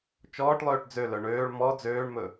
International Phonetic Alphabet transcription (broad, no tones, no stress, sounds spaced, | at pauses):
t͡ʃ ɔː ʈ lˠ øː ʈ d͡z ø l œ ɳ øː ɭ m ɔ d͡z øː ɳ m ɵ